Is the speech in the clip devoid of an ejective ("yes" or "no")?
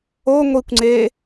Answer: yes